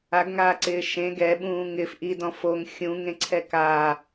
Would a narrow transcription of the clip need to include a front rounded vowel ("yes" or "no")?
no